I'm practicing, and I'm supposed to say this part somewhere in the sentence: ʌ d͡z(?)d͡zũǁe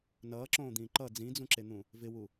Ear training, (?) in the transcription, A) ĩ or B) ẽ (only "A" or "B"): A